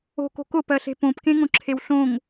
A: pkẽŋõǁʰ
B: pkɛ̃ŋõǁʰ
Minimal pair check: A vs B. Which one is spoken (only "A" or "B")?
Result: A